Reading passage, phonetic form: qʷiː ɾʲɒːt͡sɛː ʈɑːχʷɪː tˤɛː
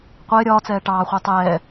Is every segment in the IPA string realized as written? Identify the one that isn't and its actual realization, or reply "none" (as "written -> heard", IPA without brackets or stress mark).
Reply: iː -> ɪː